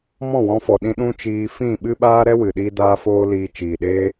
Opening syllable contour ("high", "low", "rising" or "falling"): falling